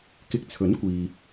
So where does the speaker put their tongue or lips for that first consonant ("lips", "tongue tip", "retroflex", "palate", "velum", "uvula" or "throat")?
velum